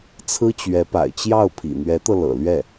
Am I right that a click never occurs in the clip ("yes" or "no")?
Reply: yes